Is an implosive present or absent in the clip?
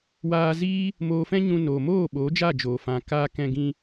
present